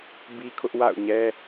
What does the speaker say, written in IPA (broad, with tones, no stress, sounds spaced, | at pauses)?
b i˦ kʰ ʊ˦ ʔ w a̰˦˨ ʊ̯ ɲ ɛ˦